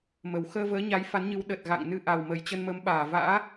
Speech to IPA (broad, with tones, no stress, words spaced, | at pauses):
mə˨˩w xəː˧vəː˨˦ɲa˨˦jfa˨˦n ɲɨ˨˦wɗə˨˩t̚ ɣa̰˧˨ŋnɨ˧ ʔa˨˩wmə˨˩jt͡ɕə˧n mə˨˦mɓaː˧˩va̰ː˧˥